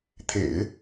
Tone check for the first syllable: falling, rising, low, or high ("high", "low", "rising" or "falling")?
low